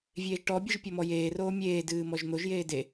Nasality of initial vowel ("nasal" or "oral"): oral